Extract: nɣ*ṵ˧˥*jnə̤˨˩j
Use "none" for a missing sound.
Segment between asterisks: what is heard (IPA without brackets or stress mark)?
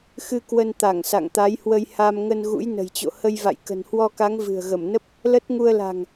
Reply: ṵ˧˥